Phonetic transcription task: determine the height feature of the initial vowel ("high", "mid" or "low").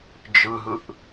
high